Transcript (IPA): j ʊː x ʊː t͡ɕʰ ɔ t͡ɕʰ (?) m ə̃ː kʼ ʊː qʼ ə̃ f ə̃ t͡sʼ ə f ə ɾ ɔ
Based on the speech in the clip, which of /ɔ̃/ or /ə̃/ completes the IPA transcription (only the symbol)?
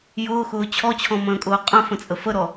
ɔ̃